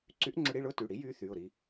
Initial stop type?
click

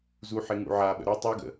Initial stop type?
implosive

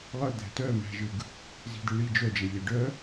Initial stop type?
plain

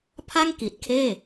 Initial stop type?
aspirated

